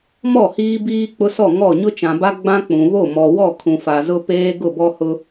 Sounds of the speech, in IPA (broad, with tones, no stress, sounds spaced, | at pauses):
m ɔ˦˨ h iː˦ b iː˦ k͡p ʊ˦ s ɔ˦˨ ŋ ɔ˦˨ ɲ ʊ˦ t͡ʃ ã˨ b a˦ ɡ͡b ã˦ k͡p ũ˨ β o˦˨ m ɔ˨ w ɔ˦˨ kʰ ũ˨ f a˨ z ʊ˦ p eː˦ ɡ ʊ˦˨ b ɔ˦ h ʊ˦